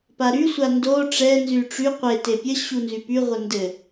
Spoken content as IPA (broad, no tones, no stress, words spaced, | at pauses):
paɾy sʷando ʈ͡ʂɛ nzyʈ͡ʂy qʷe tepʲə ɕunzypy ʁʷəndɘ